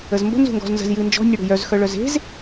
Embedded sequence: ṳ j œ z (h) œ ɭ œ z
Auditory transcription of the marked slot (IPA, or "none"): x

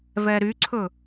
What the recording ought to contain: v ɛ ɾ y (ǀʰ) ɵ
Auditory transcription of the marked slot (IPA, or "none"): ǀʰ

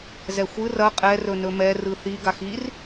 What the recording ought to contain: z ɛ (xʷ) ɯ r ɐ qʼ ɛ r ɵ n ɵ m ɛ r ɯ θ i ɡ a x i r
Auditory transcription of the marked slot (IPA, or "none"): xʷ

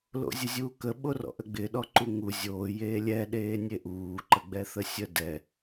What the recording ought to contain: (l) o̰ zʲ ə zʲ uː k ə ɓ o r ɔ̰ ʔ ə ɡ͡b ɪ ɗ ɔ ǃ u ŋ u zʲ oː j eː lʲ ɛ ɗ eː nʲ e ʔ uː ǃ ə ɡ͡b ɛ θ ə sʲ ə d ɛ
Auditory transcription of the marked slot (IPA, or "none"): l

